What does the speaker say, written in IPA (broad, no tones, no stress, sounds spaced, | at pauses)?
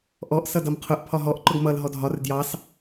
ʔ ɔ ʔ s ʌ d ʌ m qʰ ʊ ʔ pʰ ɒ ɦ ɔ ʔ ǃ ʊ ɡ m ʌ l ɦ ɔ dʱ ɒ r d j ɑ s